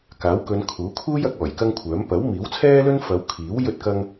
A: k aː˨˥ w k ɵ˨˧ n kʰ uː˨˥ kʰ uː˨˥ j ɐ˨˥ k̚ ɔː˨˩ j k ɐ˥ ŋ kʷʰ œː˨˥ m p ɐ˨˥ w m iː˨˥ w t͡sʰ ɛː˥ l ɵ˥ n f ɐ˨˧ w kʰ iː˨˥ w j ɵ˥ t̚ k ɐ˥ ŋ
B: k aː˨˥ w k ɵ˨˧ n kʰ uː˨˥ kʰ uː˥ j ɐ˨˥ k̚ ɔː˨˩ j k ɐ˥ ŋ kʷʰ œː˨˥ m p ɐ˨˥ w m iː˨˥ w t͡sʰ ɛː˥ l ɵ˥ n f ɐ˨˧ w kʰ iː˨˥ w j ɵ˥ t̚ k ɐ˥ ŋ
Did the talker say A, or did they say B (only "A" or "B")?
B